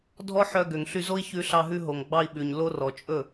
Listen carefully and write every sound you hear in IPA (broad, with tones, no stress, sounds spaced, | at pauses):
dʱ ɔ˦ ħ œ˧ ɡ ø˨ ŋ ɬ y˧ z o˦ i̯ ç ʉ˧ ɬ ɑ˧ ɦ ʉ˧ ɦ o˨ ŋ ɡ͡b ɑ˧ i̯ ɓ ʉ˨ ɲ l o˧ r ɔ˨ t͡ʃʼ ɵ˦˨